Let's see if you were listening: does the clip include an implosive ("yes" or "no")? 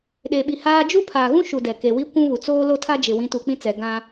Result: yes